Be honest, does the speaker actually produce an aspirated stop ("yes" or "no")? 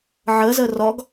no